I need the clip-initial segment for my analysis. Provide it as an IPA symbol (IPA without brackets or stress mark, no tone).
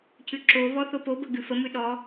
c